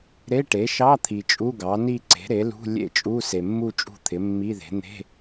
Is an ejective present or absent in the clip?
present